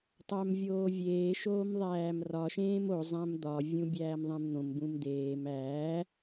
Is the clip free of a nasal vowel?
no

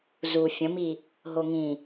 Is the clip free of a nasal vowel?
no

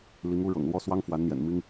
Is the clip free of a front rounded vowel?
yes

